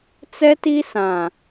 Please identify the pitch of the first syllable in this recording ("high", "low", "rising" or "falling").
high